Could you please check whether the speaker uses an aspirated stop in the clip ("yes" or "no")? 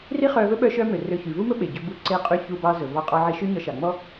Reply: no